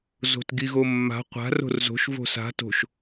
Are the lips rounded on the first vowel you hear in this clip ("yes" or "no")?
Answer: yes